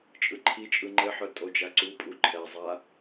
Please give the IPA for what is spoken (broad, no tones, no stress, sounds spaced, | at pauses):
t͡ʃʼ ɯ ǃʰ i t͡ʃʼ ɯ ŋ͡ǃ ɘ ħ œ tʼ o d͡ʒ a ǀ u pʼ u ǃʰ ɛ zˤ a